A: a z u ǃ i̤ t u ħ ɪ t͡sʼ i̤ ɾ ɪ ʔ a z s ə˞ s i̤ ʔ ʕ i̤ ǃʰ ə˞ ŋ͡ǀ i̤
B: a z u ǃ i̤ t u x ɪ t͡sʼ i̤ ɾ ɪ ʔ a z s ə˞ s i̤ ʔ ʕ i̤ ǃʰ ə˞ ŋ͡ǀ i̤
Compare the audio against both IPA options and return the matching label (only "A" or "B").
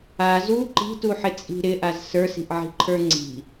A